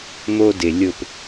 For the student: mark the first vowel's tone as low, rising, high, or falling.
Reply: high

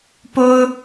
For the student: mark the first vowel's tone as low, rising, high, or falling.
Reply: high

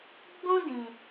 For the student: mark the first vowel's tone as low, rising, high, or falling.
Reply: high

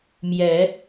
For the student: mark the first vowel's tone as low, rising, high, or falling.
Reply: rising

